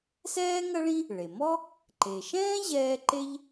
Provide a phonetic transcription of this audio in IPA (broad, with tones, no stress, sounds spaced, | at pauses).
s ɛː˥ ŋ ɐ˥ ɭ ĩ˥ | ɭ e˩ m ɔ˥ | ǃ e˩ ʃ ɛ̃ː˥ ʑ ɛː˥ ǃ e˥ ʎ